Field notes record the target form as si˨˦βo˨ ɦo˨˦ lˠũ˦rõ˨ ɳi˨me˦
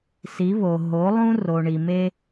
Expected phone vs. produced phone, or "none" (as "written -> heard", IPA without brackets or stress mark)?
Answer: õ˨ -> o˨